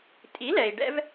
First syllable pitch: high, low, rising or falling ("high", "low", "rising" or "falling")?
rising